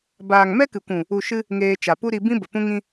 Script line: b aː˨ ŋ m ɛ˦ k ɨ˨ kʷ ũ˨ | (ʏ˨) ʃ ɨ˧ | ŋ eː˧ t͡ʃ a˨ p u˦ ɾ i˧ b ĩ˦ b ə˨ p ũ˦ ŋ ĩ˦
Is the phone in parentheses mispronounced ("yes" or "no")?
yes